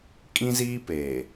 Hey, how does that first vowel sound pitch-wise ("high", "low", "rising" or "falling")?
high